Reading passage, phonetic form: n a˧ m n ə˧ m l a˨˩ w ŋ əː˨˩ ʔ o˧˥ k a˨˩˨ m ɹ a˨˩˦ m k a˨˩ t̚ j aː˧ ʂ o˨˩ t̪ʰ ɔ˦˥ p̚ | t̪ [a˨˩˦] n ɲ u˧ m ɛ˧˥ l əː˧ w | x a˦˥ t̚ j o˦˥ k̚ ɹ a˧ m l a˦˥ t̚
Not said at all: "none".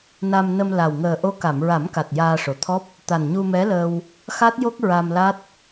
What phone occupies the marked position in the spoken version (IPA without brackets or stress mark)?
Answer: a˨˩